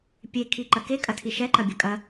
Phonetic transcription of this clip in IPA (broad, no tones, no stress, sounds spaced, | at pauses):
pʲ e kʰ i ǃ ɐ k e kʼ ɐ tʰ i ʃ ɛ ǃ ɐ bʲ ɐ kʼ ɐ